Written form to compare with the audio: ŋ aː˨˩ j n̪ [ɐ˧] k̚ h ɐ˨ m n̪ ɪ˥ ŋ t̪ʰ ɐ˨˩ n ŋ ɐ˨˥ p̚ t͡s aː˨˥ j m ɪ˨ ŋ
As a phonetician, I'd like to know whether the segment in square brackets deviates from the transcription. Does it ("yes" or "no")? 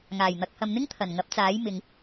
yes